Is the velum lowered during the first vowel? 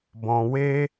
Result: yes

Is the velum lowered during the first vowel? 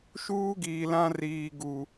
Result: no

